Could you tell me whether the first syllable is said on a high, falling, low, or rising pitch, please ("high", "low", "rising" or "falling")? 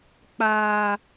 low